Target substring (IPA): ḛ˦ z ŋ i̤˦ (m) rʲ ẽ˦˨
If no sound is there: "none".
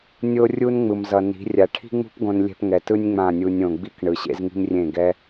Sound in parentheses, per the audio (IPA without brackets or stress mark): m